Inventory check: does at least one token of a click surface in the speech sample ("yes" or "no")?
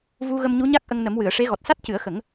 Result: no